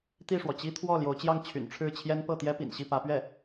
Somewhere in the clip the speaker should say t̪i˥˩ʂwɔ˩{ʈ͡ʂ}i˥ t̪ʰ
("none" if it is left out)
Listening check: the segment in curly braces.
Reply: t͡ɕ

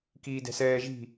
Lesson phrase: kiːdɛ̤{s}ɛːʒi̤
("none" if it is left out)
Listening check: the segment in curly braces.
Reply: s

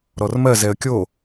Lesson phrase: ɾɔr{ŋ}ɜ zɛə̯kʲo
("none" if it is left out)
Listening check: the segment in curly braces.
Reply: m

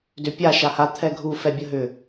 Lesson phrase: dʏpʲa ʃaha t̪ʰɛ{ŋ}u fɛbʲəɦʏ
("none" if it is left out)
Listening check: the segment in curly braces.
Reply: ɡʱ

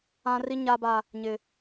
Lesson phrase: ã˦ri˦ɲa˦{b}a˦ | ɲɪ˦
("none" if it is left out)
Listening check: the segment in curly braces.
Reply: b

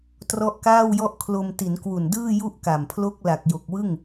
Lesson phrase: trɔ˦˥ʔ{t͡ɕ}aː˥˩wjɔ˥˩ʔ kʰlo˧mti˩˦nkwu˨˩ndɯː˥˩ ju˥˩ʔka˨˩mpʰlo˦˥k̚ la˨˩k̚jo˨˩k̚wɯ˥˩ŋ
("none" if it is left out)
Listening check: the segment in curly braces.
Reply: k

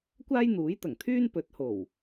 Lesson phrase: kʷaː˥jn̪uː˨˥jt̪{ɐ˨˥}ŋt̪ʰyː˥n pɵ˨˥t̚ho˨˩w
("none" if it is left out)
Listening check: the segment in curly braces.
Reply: ɐ˨˩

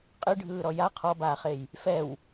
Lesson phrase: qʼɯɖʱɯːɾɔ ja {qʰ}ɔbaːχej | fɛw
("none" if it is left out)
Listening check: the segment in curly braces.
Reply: qʰ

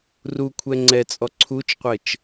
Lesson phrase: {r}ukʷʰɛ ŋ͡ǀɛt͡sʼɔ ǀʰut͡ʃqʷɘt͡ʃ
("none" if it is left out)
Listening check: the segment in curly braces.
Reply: r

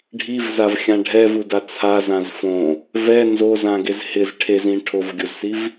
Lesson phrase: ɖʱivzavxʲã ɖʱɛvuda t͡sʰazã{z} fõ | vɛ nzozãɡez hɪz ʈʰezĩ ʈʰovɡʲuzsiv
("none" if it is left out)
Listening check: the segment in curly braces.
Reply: z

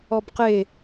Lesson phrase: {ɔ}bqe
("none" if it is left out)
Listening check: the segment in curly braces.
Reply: ɔ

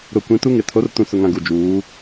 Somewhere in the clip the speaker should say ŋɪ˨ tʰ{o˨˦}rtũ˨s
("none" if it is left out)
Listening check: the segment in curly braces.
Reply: o˨˦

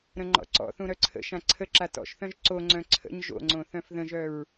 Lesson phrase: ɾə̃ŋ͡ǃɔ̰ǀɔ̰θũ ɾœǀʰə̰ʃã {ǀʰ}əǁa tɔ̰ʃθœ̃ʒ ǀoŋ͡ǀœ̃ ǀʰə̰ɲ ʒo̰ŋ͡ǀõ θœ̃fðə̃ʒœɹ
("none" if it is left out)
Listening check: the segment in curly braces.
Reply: ǀʰ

